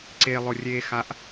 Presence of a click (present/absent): present